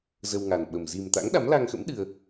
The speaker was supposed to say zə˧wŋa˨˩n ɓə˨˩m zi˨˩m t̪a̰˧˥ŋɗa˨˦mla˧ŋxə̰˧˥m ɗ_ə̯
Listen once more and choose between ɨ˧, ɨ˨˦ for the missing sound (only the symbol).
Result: ɨ˧